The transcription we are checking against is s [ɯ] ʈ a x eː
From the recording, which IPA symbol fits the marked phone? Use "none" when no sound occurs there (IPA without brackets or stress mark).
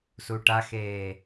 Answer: u